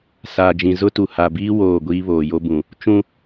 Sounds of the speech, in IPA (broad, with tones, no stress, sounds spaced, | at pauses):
s aː˨ d͡ʒ ĩ˨ z ʊ˦ t u˨ h a˨ b iː˦ w oː˦˨ ɡʷ iː˦ β oː˨ j o˦ b ũ˨ | t͡ʃ ũ˦